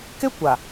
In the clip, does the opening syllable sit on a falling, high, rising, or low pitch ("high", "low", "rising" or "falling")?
high